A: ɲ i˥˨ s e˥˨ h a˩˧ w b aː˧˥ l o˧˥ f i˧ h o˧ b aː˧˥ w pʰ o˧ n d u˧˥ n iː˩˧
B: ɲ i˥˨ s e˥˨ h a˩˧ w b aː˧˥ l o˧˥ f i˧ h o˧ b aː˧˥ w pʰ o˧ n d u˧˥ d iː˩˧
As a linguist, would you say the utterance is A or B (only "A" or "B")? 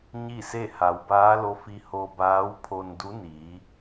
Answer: A